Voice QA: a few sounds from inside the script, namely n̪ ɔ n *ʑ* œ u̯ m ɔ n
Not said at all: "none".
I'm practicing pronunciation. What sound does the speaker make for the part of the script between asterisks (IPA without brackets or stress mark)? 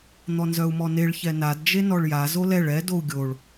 z